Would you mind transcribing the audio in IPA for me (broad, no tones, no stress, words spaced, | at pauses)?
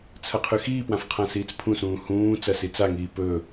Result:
t͡sʰɐqʰʉxiːpwãf qʰãsiːt͡spʰũsũː hũː t͡sɐsit͡saŋiː pɵ